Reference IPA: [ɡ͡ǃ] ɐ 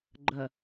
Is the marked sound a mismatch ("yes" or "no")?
no